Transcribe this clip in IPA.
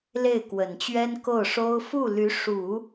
l e˥˩ ɪ̯ k w ə˨˩ n t͡ɕ ɥ ɛ˥ n k o˥˩ ʊ̯ ʂ o˥ ʊ̯ f u˥˩ l y˧˥ ʂ u˨˩˦

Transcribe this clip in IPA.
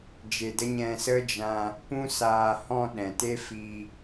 d͡ʒ e˧ d ə˦ ɲ ɛ̃˧ s ə˦ d͡ʒ ã˧ | p ũ˦ s aː˧ h ɔ̃˧ ɗ ɛ̃˨ t e˦ f i˧

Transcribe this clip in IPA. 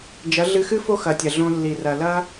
d͡ʒ ɐ˨˦ ɮ ɨ˧ x ɨ˦ f o˦ x ɐ˨ tʲ ɐ˨ ɮ õ˧ lː i˨ r ɐ˨ l ɐ˦

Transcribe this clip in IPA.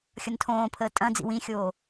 xʲ ʌ n tʰ õː pʰ əː tʼ ɐ̃ d͡z ḭ w ĩ xʲ oː

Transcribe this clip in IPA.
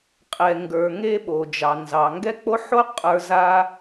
qʼ ɛ˩ ŋ ɡ ə˞˩ ŋ e˧ ɓ o˩ d͡ʒ ɑ˩ n z ɑ˩ ŋ ɡ ɛ˥ k͡p o˥ ħ o˥ qʼ ə˞˧ z a˥

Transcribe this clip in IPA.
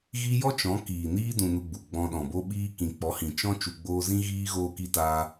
ɣ i˦ j ɔ˦ t͡ʃ ɔ̃˨˦ k iː˨ n iː˦ d ũ˧ n u˧ ɡ͡b u˨ ɡ͡b ɔ̃˧ ɗ ɔ̃˨ b o˦ ɓ iː˦ k ĩ˨ k͡p ɔ˨˦ h ĩ˨ t͡ʃ ɔ̃˦ t͡ʃ u˧ ɡ͡b oː˦ z ĩ˦ ɣ iː˦ ɣ oː˧ k i˧ t aː˧

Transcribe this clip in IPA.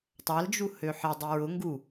tˤ a l d͡ʒ u h ø ħ e dˤ i ɹ ʊ ŋ ɡ u

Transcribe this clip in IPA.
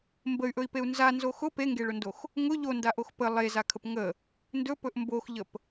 m b ə y̯ ʔ ɵ i̯ p e u̯ n z a n z o x ʊ p e ŋ ɡ e ɭ ʊ n d o x | ŋ ʊ ʎ o n d a ʔ o x p ə lˠ e z a kʰ ə p ŋ ə | n d ɵ p ɵ ʔ m b o x ʎ ə p

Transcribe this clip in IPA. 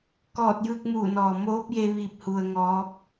k ɔː˧˩ t̚ j ɯː˧ k̚ m uː˧˩ n ɔː˩ m oː˧˥ p̚ j e˧ ʋ i˧ p̚ h u˧ ə̯ ŋ ɔː˧˥ p̚

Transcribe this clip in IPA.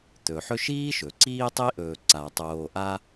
t̪ ɵ˩ ħ ɵ˦ ʃ iː˥ ʃ ɵ˩ ǀ iː˦ tˤ i˥ ʔ ɵː˨ ǀ a˩ tˤ oː˨ ʔ a˦

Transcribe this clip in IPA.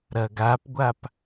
ɾ ɐ ɡ a p ɡʷ a p

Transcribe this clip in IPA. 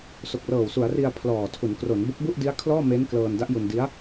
s o˨˩ k̚ r ɤː˨˩ w s u˩˦ a̯ r i˧ a̯ pʰ l ɔː˨˩ tʰ u˩˦ n k r o˩˦ n b o˦˥ k̚ b u˥˩ ʔ d i˦˥ a̯ kʰ l ɔː˥˩ m e˦˥ n k l ɤː˧ n d a˦˥ ʔ j u˧ n d i˦˥ a̯

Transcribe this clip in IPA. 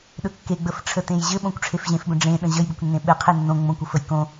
ɗ ɵ kː e ɡ͡b ə f ʈ͡ʂʰ ə t ẽ j ʑ ɘ ɓ õ kʷ ʈ͡ʂʰ e f ʑ ẽ f b ə̃ ɖ͡ʐ ẽ ɗ ə̃ ʑ ə j b ɘ kʷ nː ẽ ɓ ɘ qʰ e nː õ ŋ͡m õ kʷ o f ə j k õ

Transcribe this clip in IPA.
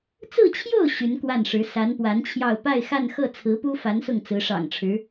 t͡s ɹ̩˥˧ t͡ɕʰ j o˥˩ ʊ̯ ɕ y˧˥ n k w a˥˩ n ʂ ɻ̩˧˥ s a˧˥ n p w a˧˥ n t͡ɕʰ j ɑ˥˧ ʊ̯ p a˥˧ ɪ̯ x a˥˧ n x ɤ˥˩ t͡sʰ ɹ̩˧˥ p u˥ f a˧˥ n s ʊ˥˩ ŋ t͡s ɹ̩˧˥ ʂ ɑ̰˨˩ ŋ ʈ͡ʂʰ ɻ̩˧˥

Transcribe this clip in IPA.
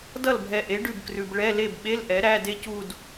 d ʌ˥˩ l bʱ ɛ˨ ʔ e˩˥ ɖ ʉ˥˩ b k r ʉ˨ b ɭ ɛ˧˥˧ l e˥˩ b ɓ e˧˥˧ l ʔ ɛ˩˥ ɾ æ˧˥˧ d e˥˧ c u˥˧ d

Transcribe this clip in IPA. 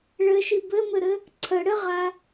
ɭ ɘ ʃ i b ɘ m ɘ ɾ ɘ | ǀʰ ə ɽ ɘ ʁ a

